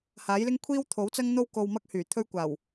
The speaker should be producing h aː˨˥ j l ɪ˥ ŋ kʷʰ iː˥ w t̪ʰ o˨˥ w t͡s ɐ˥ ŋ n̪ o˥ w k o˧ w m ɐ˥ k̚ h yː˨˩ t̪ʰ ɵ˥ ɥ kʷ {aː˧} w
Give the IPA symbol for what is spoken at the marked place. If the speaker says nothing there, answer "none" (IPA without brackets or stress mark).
aː˨˩